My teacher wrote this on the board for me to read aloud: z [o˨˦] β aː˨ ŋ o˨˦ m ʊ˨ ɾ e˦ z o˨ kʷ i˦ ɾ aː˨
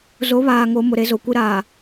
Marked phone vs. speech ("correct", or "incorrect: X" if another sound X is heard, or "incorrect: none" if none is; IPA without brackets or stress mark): correct